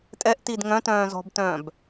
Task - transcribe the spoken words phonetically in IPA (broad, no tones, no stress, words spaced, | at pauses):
tʼɛʔ tidŋœ̃tœ̃ː zɔ̤btœ̃ːb